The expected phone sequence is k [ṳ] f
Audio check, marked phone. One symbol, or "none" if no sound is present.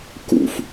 ṵ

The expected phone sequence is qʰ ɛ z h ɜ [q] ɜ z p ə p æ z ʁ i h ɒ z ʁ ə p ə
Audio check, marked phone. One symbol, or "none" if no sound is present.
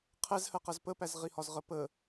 q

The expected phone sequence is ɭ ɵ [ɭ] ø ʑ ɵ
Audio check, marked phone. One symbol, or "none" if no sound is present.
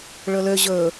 l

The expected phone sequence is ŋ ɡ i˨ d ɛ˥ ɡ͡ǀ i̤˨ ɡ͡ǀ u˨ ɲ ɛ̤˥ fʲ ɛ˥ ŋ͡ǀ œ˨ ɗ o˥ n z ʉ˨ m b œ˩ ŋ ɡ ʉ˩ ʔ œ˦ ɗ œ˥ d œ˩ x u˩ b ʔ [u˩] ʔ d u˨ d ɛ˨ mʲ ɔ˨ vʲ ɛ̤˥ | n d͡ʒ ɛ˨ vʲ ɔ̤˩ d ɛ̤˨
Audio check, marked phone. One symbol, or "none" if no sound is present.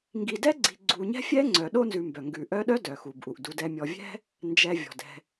u˩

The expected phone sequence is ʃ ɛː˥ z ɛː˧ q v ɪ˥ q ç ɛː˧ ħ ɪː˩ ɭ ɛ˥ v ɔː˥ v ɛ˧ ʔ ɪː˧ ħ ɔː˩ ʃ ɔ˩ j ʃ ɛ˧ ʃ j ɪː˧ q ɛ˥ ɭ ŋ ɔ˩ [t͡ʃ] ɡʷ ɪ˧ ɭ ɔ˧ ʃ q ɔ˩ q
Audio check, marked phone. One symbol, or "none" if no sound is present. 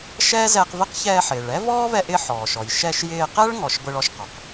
ʃ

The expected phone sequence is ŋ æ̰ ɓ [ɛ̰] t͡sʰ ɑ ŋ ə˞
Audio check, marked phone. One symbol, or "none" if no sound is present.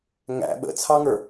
ə̰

